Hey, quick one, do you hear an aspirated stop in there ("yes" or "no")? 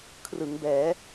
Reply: yes